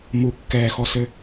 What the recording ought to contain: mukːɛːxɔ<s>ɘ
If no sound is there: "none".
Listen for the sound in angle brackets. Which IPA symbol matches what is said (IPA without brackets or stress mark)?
s